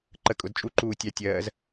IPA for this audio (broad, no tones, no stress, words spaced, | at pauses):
ǃə kʼʊd t͡ʃʼuǃuː tʲɑ tʲɜːz